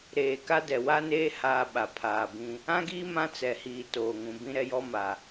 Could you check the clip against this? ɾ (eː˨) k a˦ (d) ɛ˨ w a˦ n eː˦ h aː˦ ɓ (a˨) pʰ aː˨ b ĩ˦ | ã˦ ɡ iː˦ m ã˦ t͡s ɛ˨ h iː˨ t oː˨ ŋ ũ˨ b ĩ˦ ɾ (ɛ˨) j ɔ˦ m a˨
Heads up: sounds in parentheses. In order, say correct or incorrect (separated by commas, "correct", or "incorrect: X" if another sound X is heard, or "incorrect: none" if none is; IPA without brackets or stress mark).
correct, correct, correct, incorrect: ɛ˦